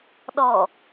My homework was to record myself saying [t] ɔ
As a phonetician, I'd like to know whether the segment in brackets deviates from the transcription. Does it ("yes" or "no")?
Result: yes